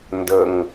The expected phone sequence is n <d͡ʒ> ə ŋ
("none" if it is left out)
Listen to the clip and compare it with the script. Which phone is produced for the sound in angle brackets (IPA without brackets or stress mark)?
d